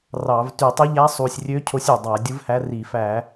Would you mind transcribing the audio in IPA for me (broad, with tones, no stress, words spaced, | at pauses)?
rɑ˧˩˧v ty˧˩˧tˤɯ˧˥ʎæ˧˥ sˤu˨˩sʲrʲø˧˥ cʰo˧˥sʲy˨˩ dˤæ˧˩˧dʲɯ˧˥vhæ˧˥ ri˧˩˧fæ˧˩˧